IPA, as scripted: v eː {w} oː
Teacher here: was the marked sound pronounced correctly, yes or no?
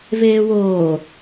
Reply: yes